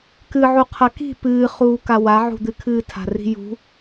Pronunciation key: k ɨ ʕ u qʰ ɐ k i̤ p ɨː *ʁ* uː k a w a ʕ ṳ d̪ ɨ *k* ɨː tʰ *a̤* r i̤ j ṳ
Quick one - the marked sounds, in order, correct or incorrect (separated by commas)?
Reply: incorrect, incorrect, correct